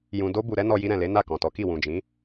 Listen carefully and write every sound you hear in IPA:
j ũ˨ d o˧ b u˨ ɾ ɛ˨˦ n ɔ˧ j i˧ ɾ ɛ̃˨ l e˨˦ n a˦˨ k ɔ̃˨ t ɔ˨˦ k i˦˨ w ũ˨ d͡ʒ ĩ˨˦

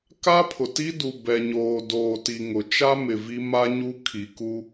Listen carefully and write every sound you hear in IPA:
k a˦ pʰ ʊ˨ t i˦ d u˨ b ɛ˨ ɲ oː˨ d oː˨ t i˨ ŋ ʊ˨ t͡ʃ a˦ m ɪ˨ v i˦ m a˦ ɲ u˦ kʰ i˨ k u˦

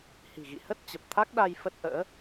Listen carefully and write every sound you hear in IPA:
h i̤˨˩ ɣ ḭ˧˨ h ə˦˥ t̚ t͡ɕ ə˨˩ p̚ t̪ʰ a˦˥ k̚ ɗ a˧ j f ə˦˥ t̚ ʔ ə̰ː˧˥

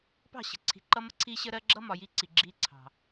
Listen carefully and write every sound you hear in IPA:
p ɑ̤˦˨ ɕ ə̤˨ ǀʰ i̤˨ ǃ ʌ˦ m ə˦ ǀʰ iː˦ ɕ ə˦ ɾ ɜ˦ ɡ͡ǁ ʌ˦ m ɒ˨ j i˦ ǀ i˨ ɡ͡ǁ iː˦ ǀʰ ɑ̤˨

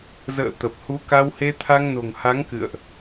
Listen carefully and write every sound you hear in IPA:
z ə̰ː˧˨ t̪ ə˨˩ p̚ h u˨˦ k a˧ w h e˧ t̪ʰ a˧ ŋ n o̤˨˩ ŋ h a˨˦ ŋ k ɨ̰˧˨ ə̯ ʔ

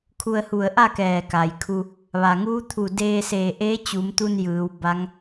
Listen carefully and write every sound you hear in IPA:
kʰ u˧ ə̯ h u˧˩ ə̯ ʔ a˥˨ k ɛː˧˩ k a˩ j kʰ u˧ | ʋ a˩ ŋ uː˧˥ t̪ʰ u˧˩ d eː˧ s eː˧˩ ʔ eː˧˥ t͡ɕ u˩˧ m t̪ u˧ n j ɯː˩˧ w b a˧˥ ŋ

